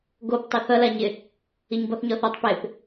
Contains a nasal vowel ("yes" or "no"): no